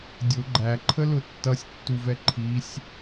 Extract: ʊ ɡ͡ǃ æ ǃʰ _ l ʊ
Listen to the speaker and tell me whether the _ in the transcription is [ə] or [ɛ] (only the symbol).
ə